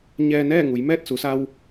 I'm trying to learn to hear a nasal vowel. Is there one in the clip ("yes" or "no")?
no